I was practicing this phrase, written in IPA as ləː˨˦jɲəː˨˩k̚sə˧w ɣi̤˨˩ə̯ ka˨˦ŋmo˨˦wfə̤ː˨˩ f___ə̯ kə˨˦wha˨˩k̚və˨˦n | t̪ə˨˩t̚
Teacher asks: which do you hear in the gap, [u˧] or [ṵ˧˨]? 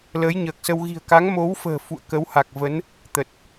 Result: ṵ˧˨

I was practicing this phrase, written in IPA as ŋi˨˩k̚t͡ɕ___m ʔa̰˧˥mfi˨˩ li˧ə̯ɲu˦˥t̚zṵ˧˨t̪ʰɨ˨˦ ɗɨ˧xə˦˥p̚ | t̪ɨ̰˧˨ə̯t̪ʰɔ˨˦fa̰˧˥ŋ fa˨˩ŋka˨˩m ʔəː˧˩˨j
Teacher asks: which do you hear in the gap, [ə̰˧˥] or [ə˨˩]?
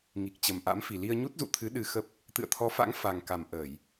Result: ə˨˩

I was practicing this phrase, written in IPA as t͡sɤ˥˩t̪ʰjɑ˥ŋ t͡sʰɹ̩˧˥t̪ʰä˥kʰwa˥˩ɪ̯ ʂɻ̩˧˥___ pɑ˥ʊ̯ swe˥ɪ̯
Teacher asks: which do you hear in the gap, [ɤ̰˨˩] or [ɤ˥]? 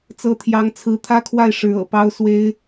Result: ɤ̰˨˩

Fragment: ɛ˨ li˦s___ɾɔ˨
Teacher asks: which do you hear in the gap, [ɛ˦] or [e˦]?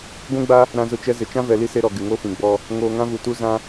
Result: e˦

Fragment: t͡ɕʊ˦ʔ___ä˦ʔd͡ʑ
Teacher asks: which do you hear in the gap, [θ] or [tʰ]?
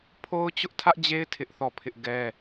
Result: tʰ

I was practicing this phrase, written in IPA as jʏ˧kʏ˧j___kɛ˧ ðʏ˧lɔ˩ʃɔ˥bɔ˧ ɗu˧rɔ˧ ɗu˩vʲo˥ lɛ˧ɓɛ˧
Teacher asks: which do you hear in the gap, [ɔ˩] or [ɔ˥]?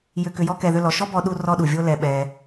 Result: ɔ˥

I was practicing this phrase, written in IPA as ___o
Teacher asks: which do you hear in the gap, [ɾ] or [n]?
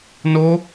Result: n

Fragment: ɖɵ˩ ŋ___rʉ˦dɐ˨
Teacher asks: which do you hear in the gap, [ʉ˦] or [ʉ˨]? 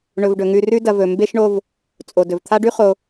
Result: ʉ˨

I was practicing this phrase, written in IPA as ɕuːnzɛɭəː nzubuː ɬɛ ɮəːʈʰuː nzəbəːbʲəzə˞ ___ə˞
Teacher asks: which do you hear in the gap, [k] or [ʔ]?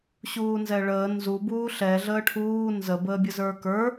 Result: k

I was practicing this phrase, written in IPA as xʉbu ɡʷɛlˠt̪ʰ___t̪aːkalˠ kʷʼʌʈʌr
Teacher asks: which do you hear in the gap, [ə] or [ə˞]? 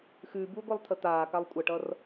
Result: ə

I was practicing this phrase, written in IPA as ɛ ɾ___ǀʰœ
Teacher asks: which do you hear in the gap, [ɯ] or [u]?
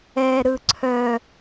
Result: ɯ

